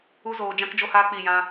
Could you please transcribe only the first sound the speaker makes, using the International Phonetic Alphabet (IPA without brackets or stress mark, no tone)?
u